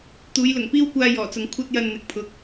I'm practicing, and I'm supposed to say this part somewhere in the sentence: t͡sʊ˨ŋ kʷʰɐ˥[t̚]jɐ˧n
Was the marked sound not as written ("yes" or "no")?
no